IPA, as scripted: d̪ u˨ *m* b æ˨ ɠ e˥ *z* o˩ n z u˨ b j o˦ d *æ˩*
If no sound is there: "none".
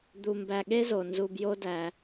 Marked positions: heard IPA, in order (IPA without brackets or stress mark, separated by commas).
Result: m, z, æ˩